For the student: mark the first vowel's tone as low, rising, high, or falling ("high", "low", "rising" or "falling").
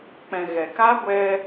low